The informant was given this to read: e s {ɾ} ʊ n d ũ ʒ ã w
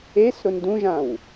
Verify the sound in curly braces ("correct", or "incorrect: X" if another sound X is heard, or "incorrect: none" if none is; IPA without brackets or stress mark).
correct